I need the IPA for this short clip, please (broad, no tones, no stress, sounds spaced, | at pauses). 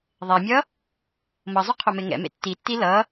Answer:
ðˤ ɛ mʲ ʌ | m ʌ zˤ u qʰ o m e ŋ ɛ̰ m ḛ tː i tː i l ʌ